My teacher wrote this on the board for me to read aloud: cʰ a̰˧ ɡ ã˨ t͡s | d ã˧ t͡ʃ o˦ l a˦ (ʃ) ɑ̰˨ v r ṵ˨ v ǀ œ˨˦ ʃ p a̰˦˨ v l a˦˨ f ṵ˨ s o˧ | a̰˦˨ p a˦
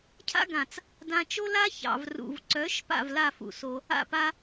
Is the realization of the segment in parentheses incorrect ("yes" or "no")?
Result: yes